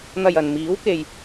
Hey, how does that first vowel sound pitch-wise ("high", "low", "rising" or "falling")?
low